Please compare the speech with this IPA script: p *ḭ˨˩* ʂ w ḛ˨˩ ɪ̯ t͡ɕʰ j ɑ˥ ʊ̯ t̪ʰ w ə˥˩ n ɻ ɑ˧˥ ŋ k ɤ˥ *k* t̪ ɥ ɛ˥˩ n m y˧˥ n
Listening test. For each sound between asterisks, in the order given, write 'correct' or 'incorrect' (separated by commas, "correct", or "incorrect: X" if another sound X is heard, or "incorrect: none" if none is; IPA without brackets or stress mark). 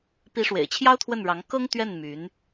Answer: incorrect: i˧˥, incorrect: ŋ